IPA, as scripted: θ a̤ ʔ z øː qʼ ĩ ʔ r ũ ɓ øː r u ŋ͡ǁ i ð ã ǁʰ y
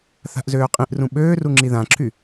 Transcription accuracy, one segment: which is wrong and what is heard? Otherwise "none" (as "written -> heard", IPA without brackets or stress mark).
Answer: none